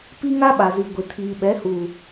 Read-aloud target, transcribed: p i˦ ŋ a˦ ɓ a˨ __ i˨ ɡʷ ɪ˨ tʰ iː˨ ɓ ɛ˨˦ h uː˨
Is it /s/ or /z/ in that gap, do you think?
z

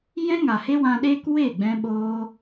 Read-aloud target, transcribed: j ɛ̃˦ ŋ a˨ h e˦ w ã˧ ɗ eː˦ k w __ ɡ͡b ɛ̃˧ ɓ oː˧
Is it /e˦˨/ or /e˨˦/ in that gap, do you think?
e˦˨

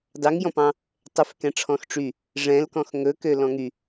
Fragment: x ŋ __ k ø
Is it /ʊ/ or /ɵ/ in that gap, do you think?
ɵ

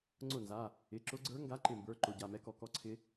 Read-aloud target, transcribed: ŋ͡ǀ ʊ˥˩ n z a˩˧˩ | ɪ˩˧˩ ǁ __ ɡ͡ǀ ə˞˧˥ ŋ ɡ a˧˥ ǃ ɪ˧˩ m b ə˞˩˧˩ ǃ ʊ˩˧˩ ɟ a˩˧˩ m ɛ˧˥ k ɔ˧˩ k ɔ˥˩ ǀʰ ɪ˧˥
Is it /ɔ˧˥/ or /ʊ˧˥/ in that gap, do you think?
ʊ˧˥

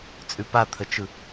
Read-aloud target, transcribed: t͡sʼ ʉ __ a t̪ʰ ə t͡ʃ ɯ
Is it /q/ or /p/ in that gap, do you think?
p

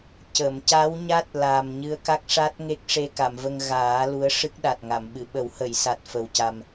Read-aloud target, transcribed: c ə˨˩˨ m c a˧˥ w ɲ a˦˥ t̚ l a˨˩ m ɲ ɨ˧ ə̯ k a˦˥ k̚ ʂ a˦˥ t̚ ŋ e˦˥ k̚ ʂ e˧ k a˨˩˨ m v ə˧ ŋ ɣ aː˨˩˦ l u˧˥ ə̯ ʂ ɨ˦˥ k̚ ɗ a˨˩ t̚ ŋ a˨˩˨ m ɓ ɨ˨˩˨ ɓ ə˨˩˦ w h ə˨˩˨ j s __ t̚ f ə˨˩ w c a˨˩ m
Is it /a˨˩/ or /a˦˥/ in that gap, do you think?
a˨˩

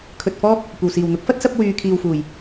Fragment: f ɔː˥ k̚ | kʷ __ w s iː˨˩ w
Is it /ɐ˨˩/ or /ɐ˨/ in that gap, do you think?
ɐ˨˩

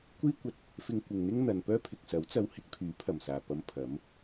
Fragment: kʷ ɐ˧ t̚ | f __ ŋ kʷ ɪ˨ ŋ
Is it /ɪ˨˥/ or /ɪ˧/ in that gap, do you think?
ɪ˧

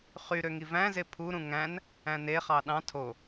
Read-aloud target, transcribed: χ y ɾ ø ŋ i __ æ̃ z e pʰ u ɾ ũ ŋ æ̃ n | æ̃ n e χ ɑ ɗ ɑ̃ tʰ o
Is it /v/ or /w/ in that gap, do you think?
v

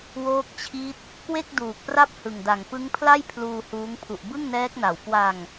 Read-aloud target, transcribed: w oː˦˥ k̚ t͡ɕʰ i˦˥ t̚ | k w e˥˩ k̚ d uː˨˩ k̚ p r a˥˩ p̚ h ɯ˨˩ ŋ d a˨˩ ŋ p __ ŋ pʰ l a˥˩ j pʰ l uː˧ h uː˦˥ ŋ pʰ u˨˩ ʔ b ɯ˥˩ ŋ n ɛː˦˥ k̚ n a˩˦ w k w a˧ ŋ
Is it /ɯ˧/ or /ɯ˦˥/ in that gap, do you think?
ɯ˦˥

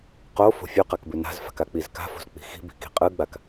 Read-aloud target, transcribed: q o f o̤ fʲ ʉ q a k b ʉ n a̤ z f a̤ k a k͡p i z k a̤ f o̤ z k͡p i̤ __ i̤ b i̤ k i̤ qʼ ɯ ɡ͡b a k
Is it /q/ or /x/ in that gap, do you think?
x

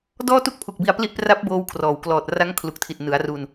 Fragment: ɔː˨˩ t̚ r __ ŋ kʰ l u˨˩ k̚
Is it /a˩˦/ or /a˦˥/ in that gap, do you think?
a˦˥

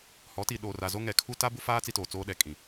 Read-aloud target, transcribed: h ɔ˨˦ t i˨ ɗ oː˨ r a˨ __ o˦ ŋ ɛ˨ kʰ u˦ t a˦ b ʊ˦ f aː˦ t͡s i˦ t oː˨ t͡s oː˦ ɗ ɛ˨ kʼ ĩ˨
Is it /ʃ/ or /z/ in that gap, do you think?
z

